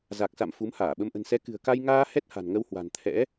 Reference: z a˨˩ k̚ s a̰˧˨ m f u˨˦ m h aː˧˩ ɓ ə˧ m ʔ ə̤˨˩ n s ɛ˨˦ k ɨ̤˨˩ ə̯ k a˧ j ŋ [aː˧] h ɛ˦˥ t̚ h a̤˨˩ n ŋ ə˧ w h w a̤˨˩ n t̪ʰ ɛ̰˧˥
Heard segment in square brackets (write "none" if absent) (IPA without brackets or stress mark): aː˧